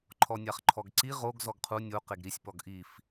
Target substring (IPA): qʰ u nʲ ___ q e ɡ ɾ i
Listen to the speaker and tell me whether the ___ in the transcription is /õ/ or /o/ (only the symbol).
o